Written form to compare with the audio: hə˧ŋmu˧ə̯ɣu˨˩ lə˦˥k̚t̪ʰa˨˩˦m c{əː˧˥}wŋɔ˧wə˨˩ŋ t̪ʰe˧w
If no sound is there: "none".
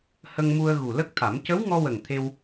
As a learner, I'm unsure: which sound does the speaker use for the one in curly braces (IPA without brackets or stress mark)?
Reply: ə˧˥